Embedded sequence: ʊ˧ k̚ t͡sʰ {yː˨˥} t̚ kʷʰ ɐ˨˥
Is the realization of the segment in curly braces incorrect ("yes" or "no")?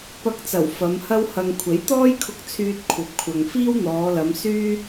yes